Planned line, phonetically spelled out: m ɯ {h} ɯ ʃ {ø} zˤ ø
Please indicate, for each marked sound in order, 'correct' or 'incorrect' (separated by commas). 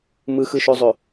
incorrect, correct